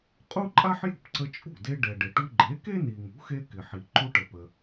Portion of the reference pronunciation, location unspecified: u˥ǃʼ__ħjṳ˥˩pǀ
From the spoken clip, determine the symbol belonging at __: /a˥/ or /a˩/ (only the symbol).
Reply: a˥